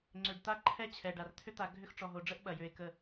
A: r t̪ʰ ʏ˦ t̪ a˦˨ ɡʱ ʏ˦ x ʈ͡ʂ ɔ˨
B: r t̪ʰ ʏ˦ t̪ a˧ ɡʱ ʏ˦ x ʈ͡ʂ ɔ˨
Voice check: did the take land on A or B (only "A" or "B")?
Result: B